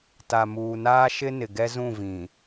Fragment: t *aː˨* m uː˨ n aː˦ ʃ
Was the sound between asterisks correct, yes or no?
no